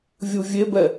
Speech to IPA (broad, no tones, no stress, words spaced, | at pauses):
vʲuvʲebɛ